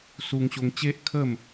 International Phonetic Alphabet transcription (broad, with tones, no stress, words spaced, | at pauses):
su˧ŋɕo˧ŋt͡ɕe˦ʔkʰə˥˧m